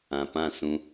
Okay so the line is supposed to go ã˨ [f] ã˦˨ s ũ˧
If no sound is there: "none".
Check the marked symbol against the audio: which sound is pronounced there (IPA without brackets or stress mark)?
p